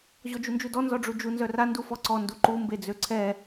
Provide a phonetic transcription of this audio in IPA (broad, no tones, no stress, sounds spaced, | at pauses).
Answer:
ʑ ɔ d͡ʒ u n d͡ʒ u d ɔ n z ɔ ɖ͡ʐ u d͡ʒ u n z œ r a n d u f ɔ ǀ ɔ n d u ǃ u m b e d͡z ø ǀʰ ɛ